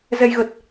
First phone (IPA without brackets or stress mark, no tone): z